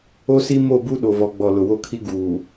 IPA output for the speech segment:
o˦ s i˦ m o˦˨ b u˦ ɗ o˨ v ɔ˨ ɡ͡b ɔ˨ l ʊ˨ w o˦ kʰ i˦ ɡ uː˨

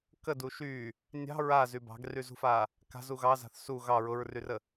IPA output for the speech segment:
k ə d u ʃ y | nʲ ɑ̤ ɹ a z y b ɑ̤ ɡ r y z ṳ f a | k a̤ z u ɣ ɑ z a̤ θ s u ɣ ɑ ɹ ʊ ɹ r y r ə

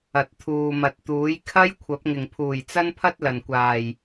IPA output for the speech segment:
ɐ˨ t̚ t̪ʰ uː˨ m ɐ˨ t̚ t̪ uː˨˥ j kʰ ɐ˥ j kʷʰ ɐ˨˥ p̚ ŋ ɪ˨˩ ŋ pʰ uː˨˩ j t͡s ɐ˥ n pʰ ɐ˥ t̚ l ɐ˨˩ n kʷ aː˨˩ j

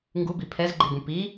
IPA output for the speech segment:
ŋ ɡ u b i pʰ ɛ z ɡ͡ǃ i b ũ p i

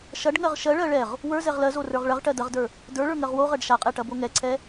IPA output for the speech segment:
ʃ ɐ ɖ ŋ ɜ ʁ ʃ ɜ ɭ ɜ ɭ ɛ ʁ | w ə˞ z ɛ ʁ l ɜ z o r ə˞ ʁ ɭ ɐ ʁ ʈ ɜ d ɐ ʁ d ə˞ | d ə˞ ɭ ə˞ ŋ ɜ ʁ w o ʁ ɜ ɖ ʃ a qʼ ɛ ʈ ɐ b o ŋ ɛ ǀʰ ɛ

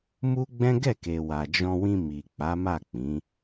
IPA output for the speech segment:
m u˦ ɡ͡b ɛ̃˦ ɡ ɛ˦˨ k e˨ w a˨ d͡ʒ ɔ̃˧ w ĩ˧ m i˨ k͡p a˨˦ m a˦˨ k͡p ĩ˨˦

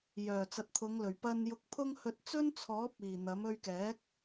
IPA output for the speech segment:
j œː˨˩ t͡s ɐ˨ t̚ t̪ʰ ʊ˨˧ ŋ l ɵ˨˩ ɥ p ɐ˧ n j ʊ˧ k̚ pʰ ʊ˥ ŋ h ɵ˧ t̚ t͡s ɵ˥ n t͡sʰ ɔː˨˥ p̚ iː˨˩ n̪ ɐ˨˥ m ɵ˧ ɥ k ɛː˨˥ k̚

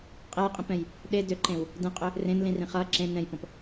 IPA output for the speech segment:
qʼ e j qʼ ĩ p ɛ̃ j | ɗ e d ʏ ǃ ẽ w | d ẽ qʼ ʏ | r ẽ n l ĩ r ĩ χ ʌ ǁ ẽ n ɛ̃ j p ɔ̃ p

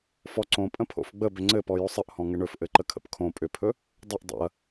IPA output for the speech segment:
f ɔ ǀ õ pʼ ə̃ pʰ o̰ f ɡ͡b ə b ʏ ŋ͡ǀ ɘ p ɔ j o sˤ ə ʔ h ɔ̃ ŋ ɘ ɳ ɵ f ʔ ɘ ǃ ə kʰ ə̰ p kʰ õ pʼ ʏ pʰ ɵ | dˤ y ʔ dˤ o̰ ɐ̯

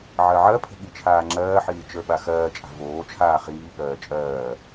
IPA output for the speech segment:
ʕ ɜ ʕ ɜ pʰ ə̤ ɠ i t͡ʃʰ aː ŋ͡ǁ ɜː ħ iː t͡ʃ ə˞ ɓ a x ɜː t͡ʃʼ a̤ v oː t͡ʃʰ aː χ iː ɠ ɜː t͡ʃʼ ɜː

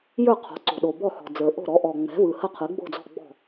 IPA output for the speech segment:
j ə˞˥˩ qʰ o̤˩˥ ǀ o̤˨˩ ɗ o˨˩ b ɔ˥˩ h ɔ̤˨˩ d͡z ə˞˨˩ ʔ o̤˥˩ ɾ ɔ˩˥ ʔ ɔ˨˩ ŋ͡m ɛ̤˩˥ v ɯ˨˩ h ə˥˩ qʰ ɯ˩˥ ɡ͡b o̤˥˩ d͡z ɔ̤˥˩ ɡ͡b ɔ̤˥˩

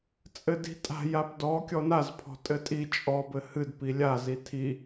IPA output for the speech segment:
t͡sʼ ɘ d i̤ tʼ a̤ j a p d ɔ kʲ ɔ n a z pʰ ɔ̤ tʼ ɘ tʼ i t͡ʃʼ ɔ b ɘ h ɨ d p i lʲ a z i tʰ i

